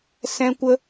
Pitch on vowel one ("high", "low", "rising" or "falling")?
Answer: high